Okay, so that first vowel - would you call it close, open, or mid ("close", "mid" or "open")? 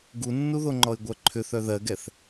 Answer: close